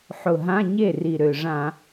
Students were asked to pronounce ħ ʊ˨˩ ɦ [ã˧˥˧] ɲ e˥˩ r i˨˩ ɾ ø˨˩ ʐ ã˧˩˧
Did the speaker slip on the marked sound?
no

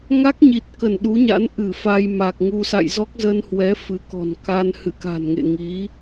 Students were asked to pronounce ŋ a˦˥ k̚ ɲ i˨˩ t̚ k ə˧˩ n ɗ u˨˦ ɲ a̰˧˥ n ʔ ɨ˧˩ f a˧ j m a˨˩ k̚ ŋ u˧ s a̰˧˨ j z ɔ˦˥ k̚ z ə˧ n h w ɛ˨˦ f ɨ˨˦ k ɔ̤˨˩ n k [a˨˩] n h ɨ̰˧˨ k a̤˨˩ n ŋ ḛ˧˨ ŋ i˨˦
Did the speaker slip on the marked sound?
yes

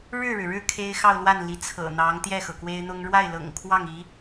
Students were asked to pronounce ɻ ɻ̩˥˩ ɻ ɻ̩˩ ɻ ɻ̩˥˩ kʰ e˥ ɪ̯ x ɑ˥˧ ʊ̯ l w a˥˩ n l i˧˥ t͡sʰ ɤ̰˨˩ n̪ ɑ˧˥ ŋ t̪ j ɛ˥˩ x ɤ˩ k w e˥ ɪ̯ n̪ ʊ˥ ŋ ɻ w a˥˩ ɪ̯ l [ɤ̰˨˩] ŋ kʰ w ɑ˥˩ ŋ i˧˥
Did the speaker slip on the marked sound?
no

